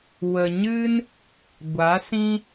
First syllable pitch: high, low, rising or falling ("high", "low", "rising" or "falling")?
low